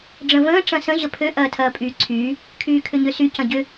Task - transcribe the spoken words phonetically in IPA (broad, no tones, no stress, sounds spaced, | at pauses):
ɖ͡ʐ ə̃ v ə̃ː ʈ͡ʂ ɐ̃ s ə̃ ʑ ə pʰ ø ʔ ɐː tʰ ɐː pʼ yː ǀʰ yː | kʰ yː kʰ ʏ ɲ ø s y c ɐ̃ ɟ ʏ